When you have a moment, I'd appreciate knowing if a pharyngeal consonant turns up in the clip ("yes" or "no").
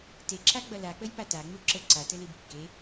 no